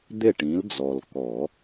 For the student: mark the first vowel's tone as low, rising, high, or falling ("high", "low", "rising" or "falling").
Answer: falling